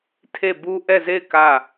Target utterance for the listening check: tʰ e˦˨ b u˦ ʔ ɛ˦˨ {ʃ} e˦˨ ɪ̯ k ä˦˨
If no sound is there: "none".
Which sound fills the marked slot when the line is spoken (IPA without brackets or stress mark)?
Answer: z